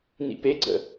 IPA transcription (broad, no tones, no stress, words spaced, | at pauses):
nḭpeɡ͡ǀə̰